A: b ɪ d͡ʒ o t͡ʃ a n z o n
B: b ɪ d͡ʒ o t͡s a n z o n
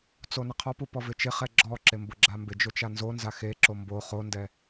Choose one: A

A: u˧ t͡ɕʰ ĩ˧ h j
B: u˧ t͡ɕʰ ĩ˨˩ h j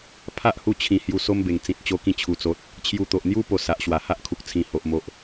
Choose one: B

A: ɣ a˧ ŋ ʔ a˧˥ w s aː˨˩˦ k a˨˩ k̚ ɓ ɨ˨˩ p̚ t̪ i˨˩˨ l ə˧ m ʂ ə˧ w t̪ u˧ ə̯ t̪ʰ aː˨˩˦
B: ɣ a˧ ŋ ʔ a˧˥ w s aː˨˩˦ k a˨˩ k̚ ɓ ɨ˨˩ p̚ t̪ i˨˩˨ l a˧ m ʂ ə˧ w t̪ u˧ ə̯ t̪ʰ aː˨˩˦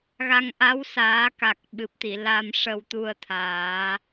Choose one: B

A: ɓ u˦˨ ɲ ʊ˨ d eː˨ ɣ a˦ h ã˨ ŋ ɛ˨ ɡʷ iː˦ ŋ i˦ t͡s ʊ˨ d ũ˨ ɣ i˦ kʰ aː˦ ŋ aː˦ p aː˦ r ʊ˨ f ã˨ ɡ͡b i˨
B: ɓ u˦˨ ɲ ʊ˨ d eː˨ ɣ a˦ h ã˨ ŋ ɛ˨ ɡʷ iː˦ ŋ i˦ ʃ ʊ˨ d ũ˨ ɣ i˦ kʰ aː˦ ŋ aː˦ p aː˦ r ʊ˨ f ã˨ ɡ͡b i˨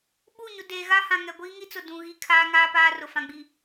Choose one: A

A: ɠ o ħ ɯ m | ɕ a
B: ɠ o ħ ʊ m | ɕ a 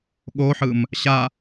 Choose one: A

